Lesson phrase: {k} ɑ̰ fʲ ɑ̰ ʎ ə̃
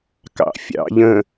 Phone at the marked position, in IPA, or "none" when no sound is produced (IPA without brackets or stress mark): k